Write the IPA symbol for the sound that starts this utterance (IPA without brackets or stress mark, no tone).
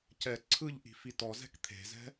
c